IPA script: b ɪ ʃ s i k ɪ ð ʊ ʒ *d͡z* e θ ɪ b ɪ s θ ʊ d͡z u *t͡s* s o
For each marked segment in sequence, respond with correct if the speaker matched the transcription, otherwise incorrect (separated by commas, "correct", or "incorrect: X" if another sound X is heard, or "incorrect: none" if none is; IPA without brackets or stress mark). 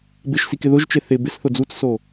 incorrect: t͡ʃ, correct